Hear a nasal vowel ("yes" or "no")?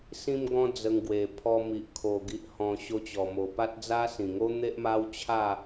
yes